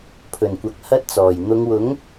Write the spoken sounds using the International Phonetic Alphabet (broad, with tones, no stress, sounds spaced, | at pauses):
pʰ ɵ˨˩ n kʷ ɐ˨ k̚ h ɐ˥ t̚ t͡s ɔː˨˩ j n̪ ʊ˨˧ ŋ w ʊ˨˥ ŋ